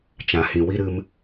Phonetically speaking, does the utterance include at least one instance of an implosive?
no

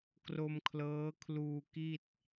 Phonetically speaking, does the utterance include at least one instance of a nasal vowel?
no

